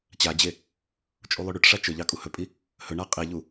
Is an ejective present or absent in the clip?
present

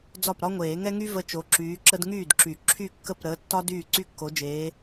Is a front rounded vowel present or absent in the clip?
present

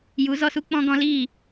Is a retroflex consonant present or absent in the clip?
absent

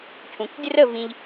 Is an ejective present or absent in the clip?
absent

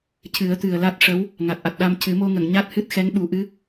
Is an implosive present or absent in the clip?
present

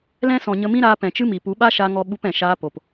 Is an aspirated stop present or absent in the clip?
absent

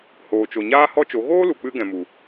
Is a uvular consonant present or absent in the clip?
absent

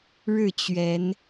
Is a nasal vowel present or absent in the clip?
absent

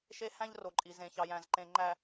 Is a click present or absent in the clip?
present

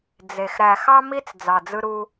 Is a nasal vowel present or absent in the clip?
absent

